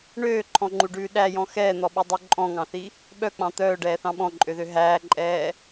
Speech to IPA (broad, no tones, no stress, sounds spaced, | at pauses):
ɳ øː ǃʰ ɔ̃ ŋ͡ǃ u ɖ ʉː ɗ æ j ɔ̃ x ɛː n̪ ɔ ɓ y dˤ ʉ ǃʼ ɔ̃ ŋ ɑ̃ θ i | ɓ œ k͡p ɑ̃ t̪ œː ɖ ɛː θ ɑ̃ ɓ ɔ̃ ǃʼ ø ð ø ɦ æː ǃʼ ɛː